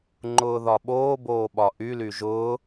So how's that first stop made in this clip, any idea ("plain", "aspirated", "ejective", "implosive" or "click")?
click